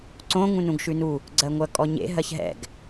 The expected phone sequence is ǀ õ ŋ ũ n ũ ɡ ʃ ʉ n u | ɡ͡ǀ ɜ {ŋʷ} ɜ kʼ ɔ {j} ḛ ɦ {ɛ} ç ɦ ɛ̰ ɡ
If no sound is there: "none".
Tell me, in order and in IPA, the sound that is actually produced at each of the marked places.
ŋʷ, ɲ, ɜ

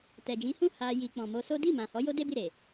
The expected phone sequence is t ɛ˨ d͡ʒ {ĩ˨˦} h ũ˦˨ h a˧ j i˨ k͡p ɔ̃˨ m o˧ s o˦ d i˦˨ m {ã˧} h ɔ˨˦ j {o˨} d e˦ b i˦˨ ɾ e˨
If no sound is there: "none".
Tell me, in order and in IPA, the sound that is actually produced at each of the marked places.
ĩ˨˦, ã˨, o˦

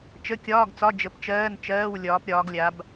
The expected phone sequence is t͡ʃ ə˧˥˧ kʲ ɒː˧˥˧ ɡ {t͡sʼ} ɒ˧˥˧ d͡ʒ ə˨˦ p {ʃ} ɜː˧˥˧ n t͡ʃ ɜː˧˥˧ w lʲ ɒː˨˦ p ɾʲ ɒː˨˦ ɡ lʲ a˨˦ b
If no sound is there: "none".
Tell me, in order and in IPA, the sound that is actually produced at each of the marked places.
t͡s, t͡ʃ

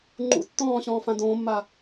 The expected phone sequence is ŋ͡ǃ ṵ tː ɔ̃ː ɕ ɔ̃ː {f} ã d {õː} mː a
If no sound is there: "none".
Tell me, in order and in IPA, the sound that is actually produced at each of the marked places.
f, õː

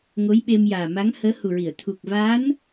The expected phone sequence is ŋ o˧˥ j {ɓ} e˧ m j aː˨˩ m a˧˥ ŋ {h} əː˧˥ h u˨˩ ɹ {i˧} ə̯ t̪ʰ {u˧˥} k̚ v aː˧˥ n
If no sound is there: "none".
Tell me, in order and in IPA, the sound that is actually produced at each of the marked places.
ɓ, h, i˨˩˨, u˨˩

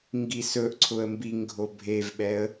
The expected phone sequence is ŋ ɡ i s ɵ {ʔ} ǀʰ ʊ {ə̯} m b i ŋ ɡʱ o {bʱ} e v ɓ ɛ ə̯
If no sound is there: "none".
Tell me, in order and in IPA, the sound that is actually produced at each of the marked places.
ʔ, ə̯, bʱ

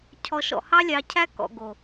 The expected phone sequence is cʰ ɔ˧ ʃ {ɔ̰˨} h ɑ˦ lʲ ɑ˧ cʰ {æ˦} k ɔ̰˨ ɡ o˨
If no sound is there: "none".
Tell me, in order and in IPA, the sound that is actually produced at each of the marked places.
ɔ̰˧, æ˦

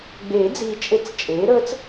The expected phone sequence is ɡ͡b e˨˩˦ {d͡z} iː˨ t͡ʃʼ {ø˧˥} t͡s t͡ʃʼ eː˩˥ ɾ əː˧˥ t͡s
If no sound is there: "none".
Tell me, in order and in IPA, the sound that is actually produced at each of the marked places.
d͡z, e˧˥

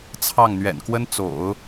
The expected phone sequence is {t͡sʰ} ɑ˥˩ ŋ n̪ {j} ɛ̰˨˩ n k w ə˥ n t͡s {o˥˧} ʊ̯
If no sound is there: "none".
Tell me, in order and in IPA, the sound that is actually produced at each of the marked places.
t͡sʰ, ɥ, o̰˨˩˦

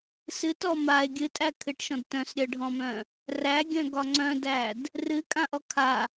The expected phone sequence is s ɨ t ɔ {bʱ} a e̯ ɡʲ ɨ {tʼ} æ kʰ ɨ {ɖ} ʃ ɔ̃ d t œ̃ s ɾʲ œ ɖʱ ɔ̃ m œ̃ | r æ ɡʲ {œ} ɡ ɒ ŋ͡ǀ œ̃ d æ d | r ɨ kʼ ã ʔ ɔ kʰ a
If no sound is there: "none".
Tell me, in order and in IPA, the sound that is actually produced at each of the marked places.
m, tʼ, ʈ, œ̃

